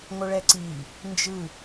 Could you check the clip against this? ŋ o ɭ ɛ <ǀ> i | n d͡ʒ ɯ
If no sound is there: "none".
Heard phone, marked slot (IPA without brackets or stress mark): ǀ